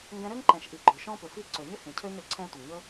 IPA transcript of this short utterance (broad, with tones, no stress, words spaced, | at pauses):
ŋɡɛ̃˧ɾø˦ŋǃɛ̃˨ʃʔi˨ ɡ͡ǃɵ˨ʃɔ̃˦pʏ˨fi˦ ǀø˨ɲʏ˦ hĩ˨cʰø˦ɲɾø˨ ǀʰɛ̃˦ tʷi˨ŋɲɵ˦